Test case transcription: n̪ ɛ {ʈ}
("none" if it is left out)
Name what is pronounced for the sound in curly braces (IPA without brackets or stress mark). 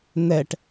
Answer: ʈ